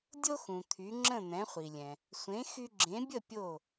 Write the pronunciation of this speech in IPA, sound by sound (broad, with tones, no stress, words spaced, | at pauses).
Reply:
dʲo˥xũ˩t̪ʰy˩˥ŋ͡ǁə̃˥˩ n̪ɛ̃˩˥χʷi˩lʲɛ̃˩ | sʷẽ˩˥ xy˧ɡ͡ǁẽ˩˥bʲə˥˩ pʲo˥˩